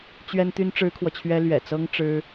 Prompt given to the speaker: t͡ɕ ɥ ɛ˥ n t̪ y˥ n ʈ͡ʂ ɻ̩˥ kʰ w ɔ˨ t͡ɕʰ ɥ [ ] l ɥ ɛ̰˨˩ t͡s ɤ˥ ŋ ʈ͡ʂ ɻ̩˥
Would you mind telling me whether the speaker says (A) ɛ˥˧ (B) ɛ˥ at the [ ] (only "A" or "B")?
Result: B